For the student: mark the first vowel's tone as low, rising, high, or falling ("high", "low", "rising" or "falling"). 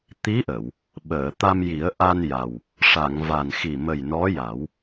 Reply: rising